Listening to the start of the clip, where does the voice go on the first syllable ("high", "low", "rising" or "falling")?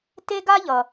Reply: high